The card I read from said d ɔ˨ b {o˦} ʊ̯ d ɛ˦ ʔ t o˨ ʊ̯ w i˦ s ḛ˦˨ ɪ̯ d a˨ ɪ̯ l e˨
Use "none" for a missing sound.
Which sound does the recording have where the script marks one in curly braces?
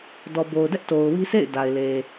o˨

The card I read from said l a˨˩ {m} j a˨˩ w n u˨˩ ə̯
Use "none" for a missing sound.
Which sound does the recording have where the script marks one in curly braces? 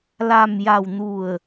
m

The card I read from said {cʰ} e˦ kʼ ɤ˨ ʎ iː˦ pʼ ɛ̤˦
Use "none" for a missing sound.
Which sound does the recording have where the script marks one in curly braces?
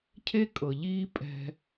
cʰ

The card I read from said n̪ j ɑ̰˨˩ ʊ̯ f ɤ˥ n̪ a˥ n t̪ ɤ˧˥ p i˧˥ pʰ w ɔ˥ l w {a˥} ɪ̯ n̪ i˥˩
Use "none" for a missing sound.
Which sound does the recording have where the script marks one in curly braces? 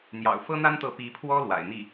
a̰˨˩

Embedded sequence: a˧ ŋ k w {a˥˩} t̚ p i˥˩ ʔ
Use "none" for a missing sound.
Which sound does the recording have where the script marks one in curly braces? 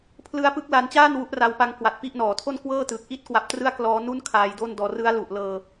a˨˩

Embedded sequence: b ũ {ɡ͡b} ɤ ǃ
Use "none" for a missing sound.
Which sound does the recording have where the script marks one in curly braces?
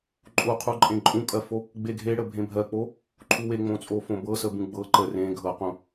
ɡ͡b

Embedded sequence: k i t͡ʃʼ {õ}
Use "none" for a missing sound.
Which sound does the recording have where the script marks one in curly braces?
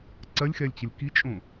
õ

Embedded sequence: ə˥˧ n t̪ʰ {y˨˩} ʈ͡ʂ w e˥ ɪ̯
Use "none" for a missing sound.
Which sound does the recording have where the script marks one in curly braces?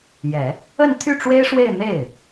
y˥˩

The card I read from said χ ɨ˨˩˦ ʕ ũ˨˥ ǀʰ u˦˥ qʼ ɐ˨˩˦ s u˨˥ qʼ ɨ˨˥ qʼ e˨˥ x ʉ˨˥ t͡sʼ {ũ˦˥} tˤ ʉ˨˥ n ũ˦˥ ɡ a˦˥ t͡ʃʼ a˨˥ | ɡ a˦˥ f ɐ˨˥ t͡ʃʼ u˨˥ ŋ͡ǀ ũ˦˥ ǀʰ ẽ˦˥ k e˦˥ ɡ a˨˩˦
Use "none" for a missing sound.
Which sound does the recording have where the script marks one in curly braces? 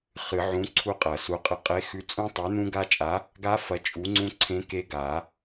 ũ˦˥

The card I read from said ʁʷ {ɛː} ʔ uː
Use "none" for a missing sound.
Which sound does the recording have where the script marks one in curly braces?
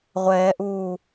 ɛː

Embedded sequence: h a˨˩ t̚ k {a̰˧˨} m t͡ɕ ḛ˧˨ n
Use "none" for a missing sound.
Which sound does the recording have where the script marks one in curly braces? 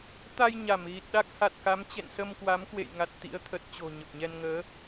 a˨˦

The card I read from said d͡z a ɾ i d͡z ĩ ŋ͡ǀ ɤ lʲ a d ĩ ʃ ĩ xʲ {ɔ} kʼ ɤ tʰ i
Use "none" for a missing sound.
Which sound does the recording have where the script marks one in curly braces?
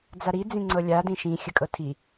ə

